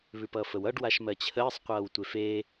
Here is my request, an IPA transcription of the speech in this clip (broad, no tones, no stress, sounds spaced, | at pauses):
β ʉ p ʌː f ə w ʌ ɖ w a ʃ m ɜ t͡ɕʰ əː sˤ qʷ ʌː w tʷ e f e